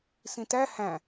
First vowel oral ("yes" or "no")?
no